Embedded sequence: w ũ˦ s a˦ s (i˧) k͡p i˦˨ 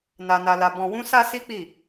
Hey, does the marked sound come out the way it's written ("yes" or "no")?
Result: no